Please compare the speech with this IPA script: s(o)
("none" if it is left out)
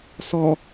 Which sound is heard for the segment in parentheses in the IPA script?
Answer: ɔ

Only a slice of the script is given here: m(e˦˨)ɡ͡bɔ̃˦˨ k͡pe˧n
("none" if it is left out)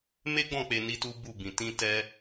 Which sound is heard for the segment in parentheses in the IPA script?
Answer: e˦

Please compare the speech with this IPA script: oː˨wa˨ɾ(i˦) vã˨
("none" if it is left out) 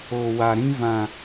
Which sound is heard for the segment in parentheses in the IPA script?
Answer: ĩ˦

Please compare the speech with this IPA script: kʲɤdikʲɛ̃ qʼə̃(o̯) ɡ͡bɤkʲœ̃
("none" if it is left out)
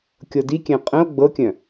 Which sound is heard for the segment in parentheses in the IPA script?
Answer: o̯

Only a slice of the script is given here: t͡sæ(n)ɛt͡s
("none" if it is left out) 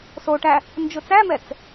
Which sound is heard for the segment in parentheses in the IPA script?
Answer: m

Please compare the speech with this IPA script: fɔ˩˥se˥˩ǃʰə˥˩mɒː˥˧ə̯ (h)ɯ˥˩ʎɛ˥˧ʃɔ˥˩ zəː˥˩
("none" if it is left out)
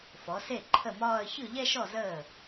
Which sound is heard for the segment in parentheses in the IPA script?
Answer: ç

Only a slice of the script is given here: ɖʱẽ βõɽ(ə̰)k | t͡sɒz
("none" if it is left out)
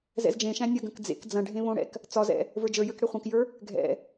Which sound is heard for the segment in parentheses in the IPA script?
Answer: ɛ̰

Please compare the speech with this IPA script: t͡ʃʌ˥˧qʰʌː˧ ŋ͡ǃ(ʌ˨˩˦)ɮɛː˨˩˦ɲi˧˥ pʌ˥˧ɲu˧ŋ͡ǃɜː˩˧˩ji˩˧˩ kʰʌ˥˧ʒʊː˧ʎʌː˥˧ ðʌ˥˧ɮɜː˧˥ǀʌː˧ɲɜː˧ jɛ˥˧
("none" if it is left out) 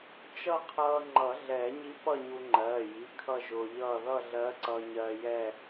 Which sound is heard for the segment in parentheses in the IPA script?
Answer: ʌ˨˩˦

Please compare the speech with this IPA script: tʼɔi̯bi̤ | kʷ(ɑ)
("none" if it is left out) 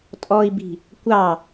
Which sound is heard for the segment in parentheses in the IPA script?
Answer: ɑ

